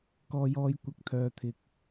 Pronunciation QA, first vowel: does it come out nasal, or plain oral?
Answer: oral